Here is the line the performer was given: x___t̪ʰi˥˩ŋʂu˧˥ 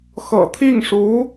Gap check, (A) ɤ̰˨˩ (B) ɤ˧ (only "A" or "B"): A